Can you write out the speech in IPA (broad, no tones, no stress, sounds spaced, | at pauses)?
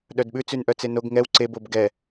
ɗ œ d ɓ ʉ t͡s ʉ n ʔ œ t͡s e n o ɡ ŋ ɛ w ǀ e b o b ɡ ɛ